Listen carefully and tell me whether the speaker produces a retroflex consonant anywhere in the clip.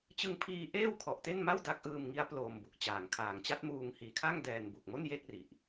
no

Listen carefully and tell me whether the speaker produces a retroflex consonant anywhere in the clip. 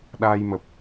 no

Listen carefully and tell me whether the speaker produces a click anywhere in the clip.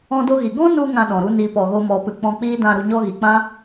no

